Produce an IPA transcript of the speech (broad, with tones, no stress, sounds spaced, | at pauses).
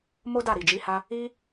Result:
m o˦ d a˦˨ ɾ i˨ d͡ʒ i˨˦ h a˧ | i˦